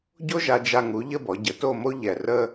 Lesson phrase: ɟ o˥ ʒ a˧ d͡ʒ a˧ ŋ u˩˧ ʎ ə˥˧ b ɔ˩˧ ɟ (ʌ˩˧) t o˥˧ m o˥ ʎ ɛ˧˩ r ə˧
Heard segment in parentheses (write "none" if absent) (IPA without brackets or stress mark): ə˩˧